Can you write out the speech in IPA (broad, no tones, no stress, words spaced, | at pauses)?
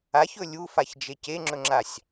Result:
açɵ lʲufaçd͡ʒe ceŋ͡ǁɵŋ͡ǁasʲ